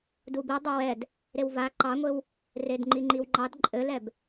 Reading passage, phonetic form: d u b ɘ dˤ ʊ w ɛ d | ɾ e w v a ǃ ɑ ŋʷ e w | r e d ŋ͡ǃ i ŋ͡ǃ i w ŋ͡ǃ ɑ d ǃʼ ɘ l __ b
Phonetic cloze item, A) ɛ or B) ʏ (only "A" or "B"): A